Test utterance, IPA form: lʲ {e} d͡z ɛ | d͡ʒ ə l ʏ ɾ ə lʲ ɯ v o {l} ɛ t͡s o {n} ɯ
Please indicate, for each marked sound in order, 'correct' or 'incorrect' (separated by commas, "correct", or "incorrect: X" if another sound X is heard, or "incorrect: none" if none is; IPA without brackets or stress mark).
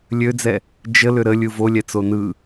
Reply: incorrect: ø, incorrect: lʲ, correct